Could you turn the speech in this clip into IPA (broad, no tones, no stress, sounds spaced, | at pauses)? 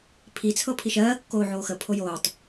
pʰ i t͡sʰ ɤ pʰ i ʃ ɜː kː oː ʕ oː x ə pʰ o j oː tˤ